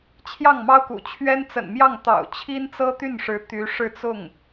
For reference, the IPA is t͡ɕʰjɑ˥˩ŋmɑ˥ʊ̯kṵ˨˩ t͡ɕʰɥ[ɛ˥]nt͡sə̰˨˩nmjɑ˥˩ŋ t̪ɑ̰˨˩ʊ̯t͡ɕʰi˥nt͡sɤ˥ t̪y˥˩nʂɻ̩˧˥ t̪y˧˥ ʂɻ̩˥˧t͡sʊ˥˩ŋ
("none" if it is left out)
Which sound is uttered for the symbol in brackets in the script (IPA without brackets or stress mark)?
ɛ˥